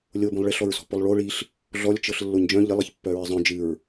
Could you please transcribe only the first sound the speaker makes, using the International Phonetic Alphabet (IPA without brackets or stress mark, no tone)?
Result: lʲ